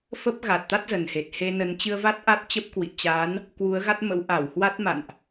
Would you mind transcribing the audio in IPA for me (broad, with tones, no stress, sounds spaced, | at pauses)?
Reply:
f ə˦˥ p̚ ɣ a˨˩ t̚ t̪ a˦˥ t̚ z ə˨˩ n h e˨˩ t̚ h e˧ n ə˨˦ n t͡ɕ ɨ˧ ə̯ v a˦˥ t̚ ʔ a˦˥ t̚ t͡ɕ ə˦˥ p̚ k w ḭ˧˨ t͡ɕ a˨˦ n | k w u˨˦ ə̯ ɣ a˦˥ t̚ m ə̰˧˥ w ʔ a˧˩ w h w a˦˥ t̚ m a̰˧˨ n ʔ